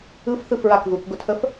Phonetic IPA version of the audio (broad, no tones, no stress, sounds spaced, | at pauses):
ɯ f θ ɯ f ɹ a k ð u k ɡ ʊ tʰ ə f